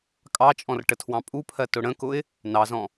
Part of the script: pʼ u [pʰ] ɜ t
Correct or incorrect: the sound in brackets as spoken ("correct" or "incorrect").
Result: correct